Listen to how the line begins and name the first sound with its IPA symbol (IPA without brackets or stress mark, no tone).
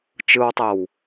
t͡ʃ